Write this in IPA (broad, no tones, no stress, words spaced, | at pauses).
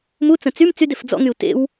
mut͡sə̃ t͡sym t͡sydef d͡zɔ̰ŋyu̯ tḛw